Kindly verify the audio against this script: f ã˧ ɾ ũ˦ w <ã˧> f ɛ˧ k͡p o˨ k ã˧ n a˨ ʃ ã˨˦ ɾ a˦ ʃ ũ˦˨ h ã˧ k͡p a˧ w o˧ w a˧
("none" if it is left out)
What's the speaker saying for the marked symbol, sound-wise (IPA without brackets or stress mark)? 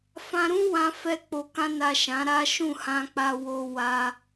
ã˧